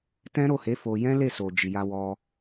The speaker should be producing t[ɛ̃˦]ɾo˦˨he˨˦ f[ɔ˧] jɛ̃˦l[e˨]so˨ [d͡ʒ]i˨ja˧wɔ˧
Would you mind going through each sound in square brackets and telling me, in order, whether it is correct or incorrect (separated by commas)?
correct, incorrect, incorrect, correct